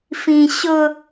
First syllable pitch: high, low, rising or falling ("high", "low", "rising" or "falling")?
low